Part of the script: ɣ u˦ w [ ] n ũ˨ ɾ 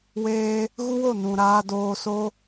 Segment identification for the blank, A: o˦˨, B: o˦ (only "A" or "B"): A